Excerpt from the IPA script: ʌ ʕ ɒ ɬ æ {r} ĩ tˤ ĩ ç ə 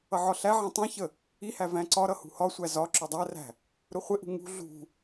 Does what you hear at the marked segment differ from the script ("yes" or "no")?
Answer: yes